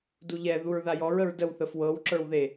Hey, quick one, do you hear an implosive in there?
no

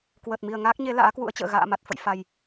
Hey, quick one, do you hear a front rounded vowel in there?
no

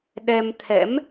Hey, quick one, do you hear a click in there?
no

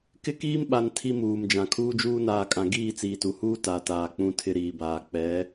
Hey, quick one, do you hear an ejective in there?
yes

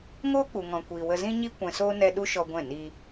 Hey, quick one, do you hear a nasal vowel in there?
yes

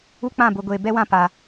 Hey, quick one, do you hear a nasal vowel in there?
yes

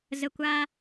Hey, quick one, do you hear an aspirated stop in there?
no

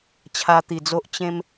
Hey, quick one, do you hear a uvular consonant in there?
no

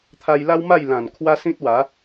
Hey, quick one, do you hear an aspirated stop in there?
yes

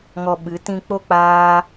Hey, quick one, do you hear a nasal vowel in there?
yes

